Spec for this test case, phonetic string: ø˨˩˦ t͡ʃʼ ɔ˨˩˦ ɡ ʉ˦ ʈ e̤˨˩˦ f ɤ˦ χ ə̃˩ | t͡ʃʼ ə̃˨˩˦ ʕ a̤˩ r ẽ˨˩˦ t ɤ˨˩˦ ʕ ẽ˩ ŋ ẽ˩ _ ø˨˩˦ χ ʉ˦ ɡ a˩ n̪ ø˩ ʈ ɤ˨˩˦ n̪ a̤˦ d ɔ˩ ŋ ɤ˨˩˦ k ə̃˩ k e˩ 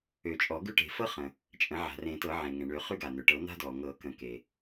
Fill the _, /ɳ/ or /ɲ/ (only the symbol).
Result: ɳ